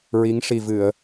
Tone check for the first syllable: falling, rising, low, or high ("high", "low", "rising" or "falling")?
rising